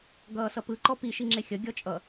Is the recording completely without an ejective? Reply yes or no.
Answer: no